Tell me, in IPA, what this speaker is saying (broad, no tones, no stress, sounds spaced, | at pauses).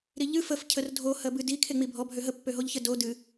ɾ i ʎ ɨ f ə f cʰ ə r dʱ o h ɜ b ɨ d i kʰ e ŋ͡m i bʱ ɔ bʱ ø ɦ ə pː ø ɦ o ʎ ç ə d o d ɨ